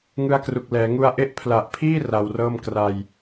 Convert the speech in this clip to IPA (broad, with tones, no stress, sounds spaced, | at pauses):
ŋ ɯ˦˥ a̯ k r u˨˩ k̚ l ɛː˩˦ ŋ u˦˥ a̯ ʔ e˥˩ ʔ pʰ l a˨˩ ʔ pʰ iː˥˩ r a˧ w r ɤː˥˩ m k r a˧ j